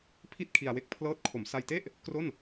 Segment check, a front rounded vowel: absent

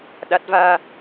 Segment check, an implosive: present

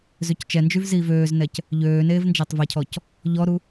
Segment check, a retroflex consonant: absent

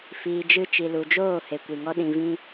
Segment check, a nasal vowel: present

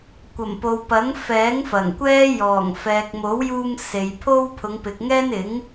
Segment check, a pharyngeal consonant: absent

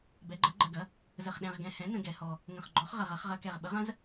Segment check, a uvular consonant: present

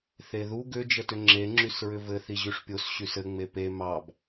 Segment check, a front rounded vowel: present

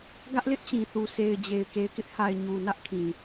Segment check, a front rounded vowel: absent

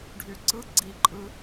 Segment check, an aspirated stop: absent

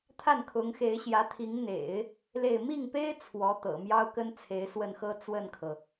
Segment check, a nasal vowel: absent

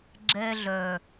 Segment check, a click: present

